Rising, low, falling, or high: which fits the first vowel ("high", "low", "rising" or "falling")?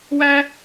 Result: high